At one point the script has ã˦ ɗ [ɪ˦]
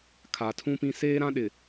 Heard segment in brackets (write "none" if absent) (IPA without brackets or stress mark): ɪ˨